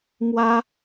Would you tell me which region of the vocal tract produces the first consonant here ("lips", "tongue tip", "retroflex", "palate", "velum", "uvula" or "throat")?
lips